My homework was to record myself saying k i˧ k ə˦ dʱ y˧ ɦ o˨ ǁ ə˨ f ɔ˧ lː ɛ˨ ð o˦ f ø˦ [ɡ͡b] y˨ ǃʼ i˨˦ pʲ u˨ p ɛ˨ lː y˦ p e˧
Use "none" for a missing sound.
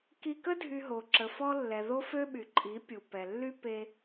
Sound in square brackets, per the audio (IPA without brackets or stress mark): ɓ